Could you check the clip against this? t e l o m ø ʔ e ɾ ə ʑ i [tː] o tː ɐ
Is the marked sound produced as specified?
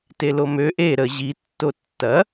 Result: yes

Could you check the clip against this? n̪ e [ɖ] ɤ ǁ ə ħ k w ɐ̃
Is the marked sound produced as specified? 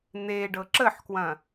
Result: yes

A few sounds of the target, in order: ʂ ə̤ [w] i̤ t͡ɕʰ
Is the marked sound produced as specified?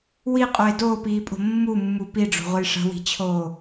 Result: yes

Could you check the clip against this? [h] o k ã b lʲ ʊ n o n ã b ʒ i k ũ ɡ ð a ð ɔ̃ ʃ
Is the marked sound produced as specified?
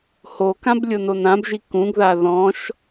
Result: yes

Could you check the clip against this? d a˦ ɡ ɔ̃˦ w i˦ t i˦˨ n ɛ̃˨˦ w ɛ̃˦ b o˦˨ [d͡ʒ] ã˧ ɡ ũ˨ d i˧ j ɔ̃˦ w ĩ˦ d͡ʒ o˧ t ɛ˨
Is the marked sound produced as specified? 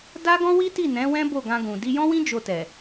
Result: no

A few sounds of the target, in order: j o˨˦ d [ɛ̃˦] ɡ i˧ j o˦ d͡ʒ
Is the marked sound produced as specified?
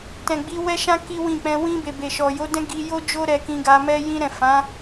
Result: yes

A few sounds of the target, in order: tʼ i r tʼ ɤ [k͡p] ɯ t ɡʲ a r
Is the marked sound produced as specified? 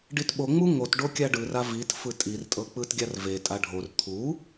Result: yes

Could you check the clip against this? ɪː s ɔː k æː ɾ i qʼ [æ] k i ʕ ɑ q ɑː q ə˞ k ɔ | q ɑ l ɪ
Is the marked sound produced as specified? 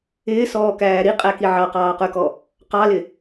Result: yes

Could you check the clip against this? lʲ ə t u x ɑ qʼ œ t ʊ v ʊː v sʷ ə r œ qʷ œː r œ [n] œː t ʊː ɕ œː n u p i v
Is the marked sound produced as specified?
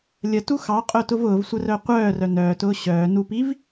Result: yes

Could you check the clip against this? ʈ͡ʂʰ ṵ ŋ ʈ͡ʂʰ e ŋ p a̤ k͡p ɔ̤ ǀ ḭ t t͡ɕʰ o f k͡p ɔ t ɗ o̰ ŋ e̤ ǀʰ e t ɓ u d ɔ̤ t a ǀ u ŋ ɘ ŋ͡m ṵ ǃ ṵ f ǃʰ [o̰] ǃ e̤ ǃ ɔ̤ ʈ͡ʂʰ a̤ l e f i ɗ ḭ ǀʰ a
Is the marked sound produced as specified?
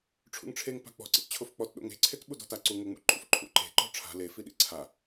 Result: no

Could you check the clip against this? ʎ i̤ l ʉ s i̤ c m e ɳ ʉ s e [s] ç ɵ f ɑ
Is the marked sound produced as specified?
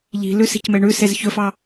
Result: no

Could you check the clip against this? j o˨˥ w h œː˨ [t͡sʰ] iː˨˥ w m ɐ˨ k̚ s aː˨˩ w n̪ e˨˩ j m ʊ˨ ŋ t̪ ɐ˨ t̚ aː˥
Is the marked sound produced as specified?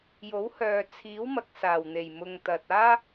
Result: yes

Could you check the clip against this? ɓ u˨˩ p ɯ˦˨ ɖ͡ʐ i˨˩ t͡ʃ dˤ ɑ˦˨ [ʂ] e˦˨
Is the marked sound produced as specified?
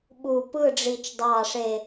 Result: yes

